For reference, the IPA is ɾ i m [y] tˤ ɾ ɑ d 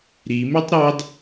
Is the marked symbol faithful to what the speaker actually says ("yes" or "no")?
yes